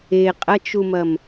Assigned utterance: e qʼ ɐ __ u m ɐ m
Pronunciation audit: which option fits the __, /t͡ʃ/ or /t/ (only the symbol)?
t͡ʃ